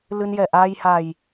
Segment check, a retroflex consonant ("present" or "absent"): absent